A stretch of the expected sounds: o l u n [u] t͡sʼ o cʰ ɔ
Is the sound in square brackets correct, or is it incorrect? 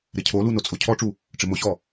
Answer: incorrect